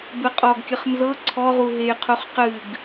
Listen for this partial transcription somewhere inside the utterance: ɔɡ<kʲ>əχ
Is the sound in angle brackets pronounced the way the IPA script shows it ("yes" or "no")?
yes